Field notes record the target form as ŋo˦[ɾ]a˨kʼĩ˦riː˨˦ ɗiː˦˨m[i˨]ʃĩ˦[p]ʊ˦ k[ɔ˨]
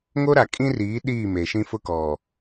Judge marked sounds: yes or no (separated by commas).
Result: yes, no, no, yes